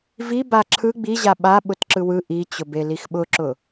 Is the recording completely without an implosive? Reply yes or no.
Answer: no